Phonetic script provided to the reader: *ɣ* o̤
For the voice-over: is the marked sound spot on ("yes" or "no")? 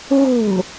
yes